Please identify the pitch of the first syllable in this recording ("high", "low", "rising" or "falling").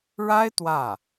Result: high